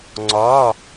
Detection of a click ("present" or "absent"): present